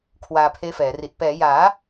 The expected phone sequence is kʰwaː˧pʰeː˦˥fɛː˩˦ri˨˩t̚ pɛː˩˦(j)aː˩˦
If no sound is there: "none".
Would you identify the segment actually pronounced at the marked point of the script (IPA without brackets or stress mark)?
j